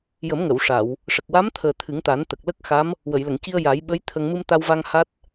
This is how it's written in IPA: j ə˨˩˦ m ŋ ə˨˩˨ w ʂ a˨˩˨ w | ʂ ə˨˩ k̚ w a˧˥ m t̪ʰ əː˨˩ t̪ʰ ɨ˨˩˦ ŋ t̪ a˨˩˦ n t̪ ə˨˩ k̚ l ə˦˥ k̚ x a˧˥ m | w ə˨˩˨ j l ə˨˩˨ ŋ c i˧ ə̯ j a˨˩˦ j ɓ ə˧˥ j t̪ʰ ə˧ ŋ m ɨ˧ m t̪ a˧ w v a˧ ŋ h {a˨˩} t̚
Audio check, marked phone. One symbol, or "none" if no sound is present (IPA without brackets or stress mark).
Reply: a˦˥